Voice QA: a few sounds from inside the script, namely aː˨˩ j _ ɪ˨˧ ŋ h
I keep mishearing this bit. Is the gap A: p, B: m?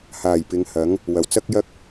A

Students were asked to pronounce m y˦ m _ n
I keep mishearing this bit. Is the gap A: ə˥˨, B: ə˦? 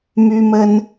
B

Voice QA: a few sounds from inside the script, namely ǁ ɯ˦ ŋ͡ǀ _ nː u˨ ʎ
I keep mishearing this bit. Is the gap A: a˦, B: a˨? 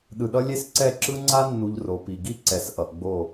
A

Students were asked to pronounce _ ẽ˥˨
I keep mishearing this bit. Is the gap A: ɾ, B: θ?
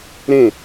A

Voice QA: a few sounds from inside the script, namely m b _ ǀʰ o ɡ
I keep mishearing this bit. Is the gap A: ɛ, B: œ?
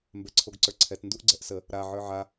A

